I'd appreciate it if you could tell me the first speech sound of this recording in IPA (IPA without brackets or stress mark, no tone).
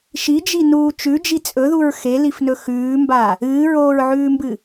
ʃ